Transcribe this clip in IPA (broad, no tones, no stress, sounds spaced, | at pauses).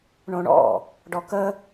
ɳ õ ɳ ɔ̰ | ɖ ɔ k ə